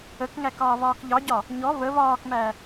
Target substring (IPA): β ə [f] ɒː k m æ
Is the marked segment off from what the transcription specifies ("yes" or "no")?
yes